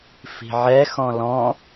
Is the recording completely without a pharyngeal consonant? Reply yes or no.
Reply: no